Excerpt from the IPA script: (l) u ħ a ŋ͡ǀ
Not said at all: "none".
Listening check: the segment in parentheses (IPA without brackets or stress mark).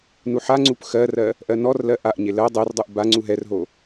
n